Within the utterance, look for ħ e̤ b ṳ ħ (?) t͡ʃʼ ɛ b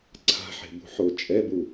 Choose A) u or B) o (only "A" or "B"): B